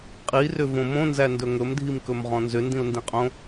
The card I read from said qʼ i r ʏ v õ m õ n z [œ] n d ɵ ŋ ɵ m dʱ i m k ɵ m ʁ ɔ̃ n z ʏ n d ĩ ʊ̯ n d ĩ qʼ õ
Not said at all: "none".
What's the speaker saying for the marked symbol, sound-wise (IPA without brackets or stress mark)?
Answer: æ